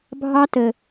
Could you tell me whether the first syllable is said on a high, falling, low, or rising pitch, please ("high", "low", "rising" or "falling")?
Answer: high